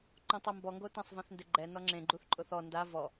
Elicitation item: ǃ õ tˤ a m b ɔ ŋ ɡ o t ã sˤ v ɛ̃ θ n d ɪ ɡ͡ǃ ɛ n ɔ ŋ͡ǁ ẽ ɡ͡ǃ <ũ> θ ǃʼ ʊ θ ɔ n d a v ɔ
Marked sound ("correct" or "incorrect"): incorrect